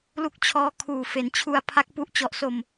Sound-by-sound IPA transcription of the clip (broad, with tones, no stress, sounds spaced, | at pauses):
l u˦˥ k̚ t͡ɕʰ ɔː˦˥ kʰ uː˨˩ f e˩˦ n t͡ɕʰ u˧ a̯ pʰ a˦˥ k̚ p u˦˥ ʔ t͡ɕ ɔ˨˩ ʔ s o˨˩ m